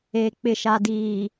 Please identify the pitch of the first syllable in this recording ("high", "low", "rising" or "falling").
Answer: low